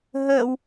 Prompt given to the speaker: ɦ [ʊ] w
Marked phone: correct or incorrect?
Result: incorrect: ə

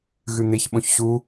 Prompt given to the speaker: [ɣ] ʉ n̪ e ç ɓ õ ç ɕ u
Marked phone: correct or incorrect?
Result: correct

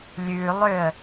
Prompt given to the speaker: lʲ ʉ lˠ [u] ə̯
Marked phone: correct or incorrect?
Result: incorrect: ʏ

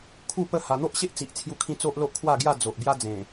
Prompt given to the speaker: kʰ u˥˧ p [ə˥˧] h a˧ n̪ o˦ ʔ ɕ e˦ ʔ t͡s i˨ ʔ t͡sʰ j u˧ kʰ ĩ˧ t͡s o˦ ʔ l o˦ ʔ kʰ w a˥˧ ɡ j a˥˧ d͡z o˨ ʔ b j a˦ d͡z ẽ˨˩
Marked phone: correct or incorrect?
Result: correct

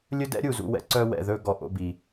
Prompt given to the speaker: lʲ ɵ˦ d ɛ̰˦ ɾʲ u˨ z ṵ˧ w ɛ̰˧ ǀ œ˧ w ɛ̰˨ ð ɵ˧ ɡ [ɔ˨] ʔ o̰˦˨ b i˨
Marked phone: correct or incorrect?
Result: correct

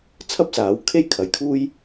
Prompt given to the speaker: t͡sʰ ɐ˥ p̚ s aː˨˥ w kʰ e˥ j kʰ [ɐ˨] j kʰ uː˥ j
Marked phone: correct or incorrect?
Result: correct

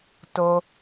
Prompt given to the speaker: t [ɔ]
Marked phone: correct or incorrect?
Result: incorrect: o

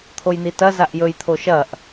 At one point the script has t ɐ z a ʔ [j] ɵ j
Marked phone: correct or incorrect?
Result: correct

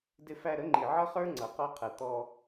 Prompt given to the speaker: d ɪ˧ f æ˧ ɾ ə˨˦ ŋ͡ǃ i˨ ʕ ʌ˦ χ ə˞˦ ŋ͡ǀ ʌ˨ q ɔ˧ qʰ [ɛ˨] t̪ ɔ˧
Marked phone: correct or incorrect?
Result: correct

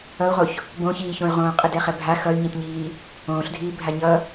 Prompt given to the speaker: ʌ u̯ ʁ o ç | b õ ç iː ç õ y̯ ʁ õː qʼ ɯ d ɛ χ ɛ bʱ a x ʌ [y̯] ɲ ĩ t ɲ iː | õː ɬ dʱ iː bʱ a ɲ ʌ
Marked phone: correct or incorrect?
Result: correct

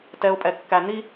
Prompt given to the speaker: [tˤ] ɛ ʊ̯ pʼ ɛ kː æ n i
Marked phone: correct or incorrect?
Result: incorrect: t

